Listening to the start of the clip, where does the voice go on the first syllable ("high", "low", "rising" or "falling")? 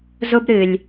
high